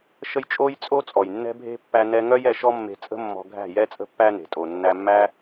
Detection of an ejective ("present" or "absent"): present